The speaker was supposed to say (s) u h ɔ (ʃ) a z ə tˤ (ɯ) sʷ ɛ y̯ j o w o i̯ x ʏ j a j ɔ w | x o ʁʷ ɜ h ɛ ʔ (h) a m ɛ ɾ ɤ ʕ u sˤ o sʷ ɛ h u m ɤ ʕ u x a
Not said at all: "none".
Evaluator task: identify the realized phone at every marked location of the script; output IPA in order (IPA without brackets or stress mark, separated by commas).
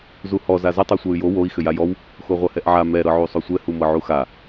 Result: z, z, ɯ, ʕ